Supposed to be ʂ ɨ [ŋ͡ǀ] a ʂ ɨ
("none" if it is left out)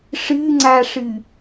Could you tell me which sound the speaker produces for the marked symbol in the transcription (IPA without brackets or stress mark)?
ŋ͡ǀ